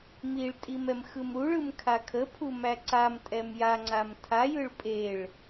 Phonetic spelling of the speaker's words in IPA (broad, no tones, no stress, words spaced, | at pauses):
miɭtʼim ɛmxɯmɾuɭɯm kʰakʰəpʰu mæǀamtʼɛm jaŋ͡ǀam tʰajɯɭ pʼeɭ